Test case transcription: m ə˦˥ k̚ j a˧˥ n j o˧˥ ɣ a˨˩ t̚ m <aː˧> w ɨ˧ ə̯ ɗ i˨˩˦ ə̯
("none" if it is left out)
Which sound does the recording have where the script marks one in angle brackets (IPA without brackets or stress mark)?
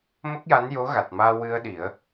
aː˧